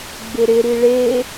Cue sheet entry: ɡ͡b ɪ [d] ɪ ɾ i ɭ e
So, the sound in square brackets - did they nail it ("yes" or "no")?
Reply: no